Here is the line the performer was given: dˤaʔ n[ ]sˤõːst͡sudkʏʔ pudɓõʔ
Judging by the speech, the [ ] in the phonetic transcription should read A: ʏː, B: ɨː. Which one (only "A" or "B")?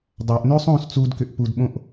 A